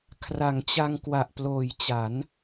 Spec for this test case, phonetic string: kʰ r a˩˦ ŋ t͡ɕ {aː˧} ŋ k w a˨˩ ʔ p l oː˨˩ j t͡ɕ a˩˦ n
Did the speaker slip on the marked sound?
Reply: yes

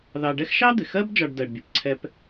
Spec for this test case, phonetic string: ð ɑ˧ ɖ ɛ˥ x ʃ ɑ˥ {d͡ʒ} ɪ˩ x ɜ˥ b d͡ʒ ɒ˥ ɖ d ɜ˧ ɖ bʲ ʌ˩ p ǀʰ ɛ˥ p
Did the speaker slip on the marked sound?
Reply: yes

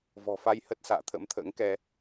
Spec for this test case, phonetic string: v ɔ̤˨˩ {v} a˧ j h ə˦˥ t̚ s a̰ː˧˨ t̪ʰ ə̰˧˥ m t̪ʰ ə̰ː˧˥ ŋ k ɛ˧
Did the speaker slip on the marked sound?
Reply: yes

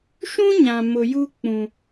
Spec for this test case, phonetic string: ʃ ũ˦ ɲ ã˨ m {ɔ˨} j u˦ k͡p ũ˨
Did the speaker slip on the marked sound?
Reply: yes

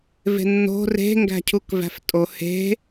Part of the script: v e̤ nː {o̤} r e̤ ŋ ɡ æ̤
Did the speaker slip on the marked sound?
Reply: no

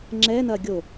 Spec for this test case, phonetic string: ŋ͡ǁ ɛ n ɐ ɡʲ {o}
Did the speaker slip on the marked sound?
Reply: no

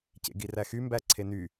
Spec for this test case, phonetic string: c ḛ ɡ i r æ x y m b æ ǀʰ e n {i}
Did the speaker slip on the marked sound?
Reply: yes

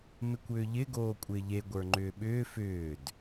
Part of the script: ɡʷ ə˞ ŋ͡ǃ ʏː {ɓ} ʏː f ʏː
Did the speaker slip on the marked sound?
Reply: no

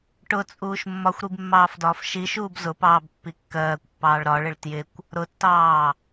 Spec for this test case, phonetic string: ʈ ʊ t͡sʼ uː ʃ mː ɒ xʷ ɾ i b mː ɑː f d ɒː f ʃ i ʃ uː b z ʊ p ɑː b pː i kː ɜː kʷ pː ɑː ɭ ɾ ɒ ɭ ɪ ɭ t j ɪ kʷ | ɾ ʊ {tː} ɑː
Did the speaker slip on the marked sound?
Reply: no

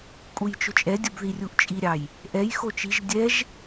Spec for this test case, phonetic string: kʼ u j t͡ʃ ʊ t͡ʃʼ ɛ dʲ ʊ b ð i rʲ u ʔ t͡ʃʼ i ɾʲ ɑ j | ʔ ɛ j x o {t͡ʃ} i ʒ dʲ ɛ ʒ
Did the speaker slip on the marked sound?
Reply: no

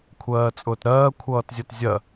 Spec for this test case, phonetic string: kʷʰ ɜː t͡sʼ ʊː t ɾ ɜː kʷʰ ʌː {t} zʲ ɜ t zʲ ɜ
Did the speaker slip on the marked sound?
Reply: no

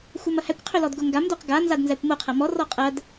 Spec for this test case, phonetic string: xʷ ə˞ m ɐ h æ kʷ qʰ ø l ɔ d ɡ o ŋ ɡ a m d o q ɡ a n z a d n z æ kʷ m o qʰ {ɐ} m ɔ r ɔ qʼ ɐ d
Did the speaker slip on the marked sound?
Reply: no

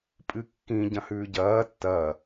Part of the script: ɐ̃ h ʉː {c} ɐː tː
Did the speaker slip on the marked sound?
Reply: yes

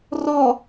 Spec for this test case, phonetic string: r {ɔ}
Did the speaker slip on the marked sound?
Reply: no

